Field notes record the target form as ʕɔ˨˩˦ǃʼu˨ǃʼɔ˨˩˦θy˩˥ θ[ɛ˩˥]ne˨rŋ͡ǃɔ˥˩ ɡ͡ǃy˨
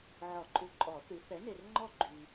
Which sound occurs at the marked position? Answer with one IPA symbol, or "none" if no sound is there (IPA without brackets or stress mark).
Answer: ɛ˩˥